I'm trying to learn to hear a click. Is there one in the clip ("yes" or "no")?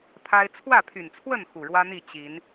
no